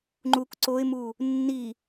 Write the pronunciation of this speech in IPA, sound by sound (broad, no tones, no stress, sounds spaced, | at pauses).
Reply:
ŋ͡ǃ u k ǀ o ɪ̯ m u | nː i